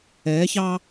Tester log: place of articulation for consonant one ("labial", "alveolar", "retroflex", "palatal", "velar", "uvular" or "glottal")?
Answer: palatal